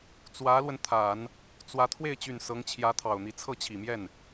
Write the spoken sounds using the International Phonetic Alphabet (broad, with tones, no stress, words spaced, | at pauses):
t͡swä˧˥lwə˧nt̪ʰa˨˩˦n | t͡swä˧˥ t̪ʰwe˥˩ɪ̯t͡ɕy˨˩n sɤ˧˥ŋt͡ɕʰjä˧˥t̪ʰɑ˨˩ʊ̯n̪i˧˥ t͡sʰɤ˥˩t͡ɕʰi˨˩mjɛ˥˩n